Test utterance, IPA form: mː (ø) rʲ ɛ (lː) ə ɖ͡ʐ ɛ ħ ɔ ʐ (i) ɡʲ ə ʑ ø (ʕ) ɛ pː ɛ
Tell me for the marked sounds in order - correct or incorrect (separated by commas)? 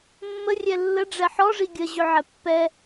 incorrect, correct, correct, correct